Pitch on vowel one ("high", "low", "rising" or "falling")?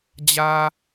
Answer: low